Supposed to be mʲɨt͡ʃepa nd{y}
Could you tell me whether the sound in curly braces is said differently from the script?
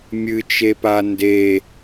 yes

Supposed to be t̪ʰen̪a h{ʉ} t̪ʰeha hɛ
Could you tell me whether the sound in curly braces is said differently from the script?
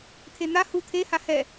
yes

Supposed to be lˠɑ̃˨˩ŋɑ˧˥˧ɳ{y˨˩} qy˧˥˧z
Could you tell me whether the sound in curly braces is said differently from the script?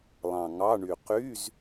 no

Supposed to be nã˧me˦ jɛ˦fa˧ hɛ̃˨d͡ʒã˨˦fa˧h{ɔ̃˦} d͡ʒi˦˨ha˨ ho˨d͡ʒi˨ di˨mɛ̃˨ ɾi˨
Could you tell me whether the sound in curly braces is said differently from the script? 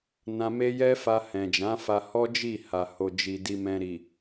yes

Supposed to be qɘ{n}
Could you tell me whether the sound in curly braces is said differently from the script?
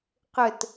yes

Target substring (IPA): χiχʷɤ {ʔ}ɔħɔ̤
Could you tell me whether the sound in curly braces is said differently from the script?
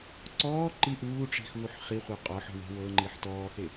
yes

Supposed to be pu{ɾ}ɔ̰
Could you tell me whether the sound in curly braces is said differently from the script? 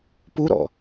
no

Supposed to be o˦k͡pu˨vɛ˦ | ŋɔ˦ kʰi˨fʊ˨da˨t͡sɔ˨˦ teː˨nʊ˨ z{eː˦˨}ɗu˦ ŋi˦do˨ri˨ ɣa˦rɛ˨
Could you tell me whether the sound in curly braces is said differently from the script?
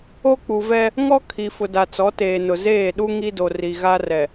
no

